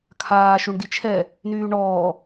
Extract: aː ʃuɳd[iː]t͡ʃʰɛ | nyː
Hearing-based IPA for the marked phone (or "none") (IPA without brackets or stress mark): i